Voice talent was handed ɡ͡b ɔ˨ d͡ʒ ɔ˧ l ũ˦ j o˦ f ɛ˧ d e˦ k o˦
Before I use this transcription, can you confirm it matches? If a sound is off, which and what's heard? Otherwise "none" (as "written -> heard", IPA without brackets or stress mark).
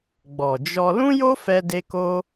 none